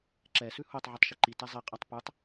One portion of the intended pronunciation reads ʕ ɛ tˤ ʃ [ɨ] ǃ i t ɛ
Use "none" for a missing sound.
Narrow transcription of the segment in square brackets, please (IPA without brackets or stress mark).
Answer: i